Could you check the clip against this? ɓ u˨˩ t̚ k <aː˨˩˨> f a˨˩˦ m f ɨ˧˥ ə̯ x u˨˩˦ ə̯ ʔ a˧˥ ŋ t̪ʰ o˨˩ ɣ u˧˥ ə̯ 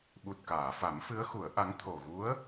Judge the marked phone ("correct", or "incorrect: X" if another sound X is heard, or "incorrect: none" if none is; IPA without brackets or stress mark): correct